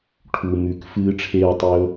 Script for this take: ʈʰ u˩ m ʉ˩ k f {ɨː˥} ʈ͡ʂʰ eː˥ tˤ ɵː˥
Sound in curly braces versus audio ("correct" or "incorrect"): correct